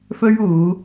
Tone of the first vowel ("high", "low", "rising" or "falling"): high